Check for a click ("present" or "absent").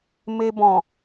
absent